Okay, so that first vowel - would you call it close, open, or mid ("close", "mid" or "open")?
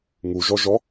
close